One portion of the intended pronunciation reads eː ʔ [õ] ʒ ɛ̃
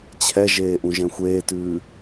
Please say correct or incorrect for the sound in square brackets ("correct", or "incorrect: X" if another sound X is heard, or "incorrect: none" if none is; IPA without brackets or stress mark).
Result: incorrect: ũ